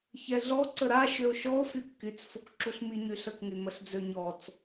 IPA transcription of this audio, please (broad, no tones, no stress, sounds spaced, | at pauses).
ç ɛ ɮ ɔ ǀ ə ɾ a ʃ ø o̯ ʃ ɔ o̯ f y kː y t͡s f o k ǁ u ɬ m i ɲ y ɬ ə k ŋ y m ə ɬ d͡z ø ɲ ɔ t͡s